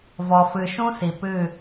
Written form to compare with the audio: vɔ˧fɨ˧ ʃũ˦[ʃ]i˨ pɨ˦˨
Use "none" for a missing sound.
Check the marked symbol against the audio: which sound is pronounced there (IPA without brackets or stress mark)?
s